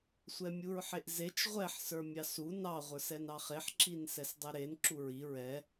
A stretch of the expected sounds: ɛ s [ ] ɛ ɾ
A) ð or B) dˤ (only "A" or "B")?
B